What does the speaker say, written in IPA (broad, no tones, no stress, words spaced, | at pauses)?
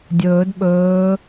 dʲɵːd ɓɵː